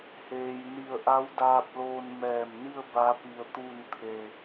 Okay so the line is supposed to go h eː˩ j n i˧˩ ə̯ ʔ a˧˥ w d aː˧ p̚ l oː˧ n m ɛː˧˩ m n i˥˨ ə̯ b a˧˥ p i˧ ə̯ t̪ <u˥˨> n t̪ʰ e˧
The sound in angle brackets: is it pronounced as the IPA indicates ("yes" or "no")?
yes